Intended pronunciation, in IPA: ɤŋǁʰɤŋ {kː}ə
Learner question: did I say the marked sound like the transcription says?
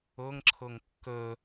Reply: yes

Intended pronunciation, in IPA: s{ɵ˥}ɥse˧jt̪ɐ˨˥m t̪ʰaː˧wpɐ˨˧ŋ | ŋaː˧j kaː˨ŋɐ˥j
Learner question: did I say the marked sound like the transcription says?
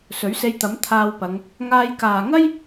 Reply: no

